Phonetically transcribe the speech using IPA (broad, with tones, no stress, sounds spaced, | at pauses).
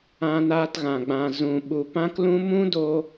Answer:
ã˧ n aː˧ t ɣ ã˨ ɡ͡b ã˨ z ũ˨ ɓ u˧ p ã˦ k l ũ˦ m ũ˦ d o˧